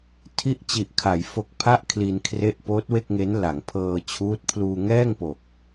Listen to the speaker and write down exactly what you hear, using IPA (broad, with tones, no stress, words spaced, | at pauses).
tʰi˦˥ʔt͡ɕi˨˩ʔkʰa˩˦j fo˨˩k̚pʰa˦˥ʔ kʰli˧n kʰre˦˥ʔpoː˦˥t̚we˥˩k̚ŋe˦˥n la˩˦ŋpʰɤː˧t͡ɕʰuː˦˥t̚ pʰluː˧ŋɛː˥˩ŋpo˨˩k̚